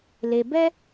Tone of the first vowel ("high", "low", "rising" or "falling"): low